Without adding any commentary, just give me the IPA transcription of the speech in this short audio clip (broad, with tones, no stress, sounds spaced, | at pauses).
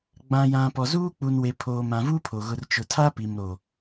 ɡ͡b ã˨ j ã˨ p ɔ˨ z uː˦ k͡p u˨ n w e˨ pʰ oː˨ m ã˨ v u˦ pʰ o˨ ɣ ʊ˨ r t͡ʃ ʊ˨ tʰ a˦ p i˨ m ɾ o˨